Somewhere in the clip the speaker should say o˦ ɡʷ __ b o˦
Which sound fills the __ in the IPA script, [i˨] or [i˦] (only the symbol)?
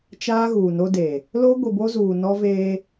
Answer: i˨